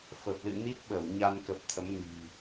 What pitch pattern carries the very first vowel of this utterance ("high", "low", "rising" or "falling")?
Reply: low